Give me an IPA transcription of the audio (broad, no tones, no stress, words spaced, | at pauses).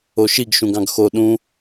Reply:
oʃiɡ ʃũɡɑ̃ɡxo ɗũ